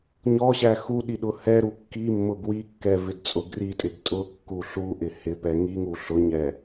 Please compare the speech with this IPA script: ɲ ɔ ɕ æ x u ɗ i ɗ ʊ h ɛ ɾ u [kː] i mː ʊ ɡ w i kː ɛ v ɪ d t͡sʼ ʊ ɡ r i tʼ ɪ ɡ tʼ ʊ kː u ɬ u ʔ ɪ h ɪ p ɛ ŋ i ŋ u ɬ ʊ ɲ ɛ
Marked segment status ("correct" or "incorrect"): correct